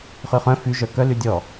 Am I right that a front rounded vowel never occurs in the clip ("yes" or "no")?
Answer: no